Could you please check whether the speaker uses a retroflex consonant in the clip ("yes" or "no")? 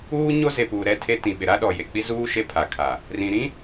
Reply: no